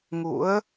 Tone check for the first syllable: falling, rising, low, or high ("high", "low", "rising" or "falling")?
rising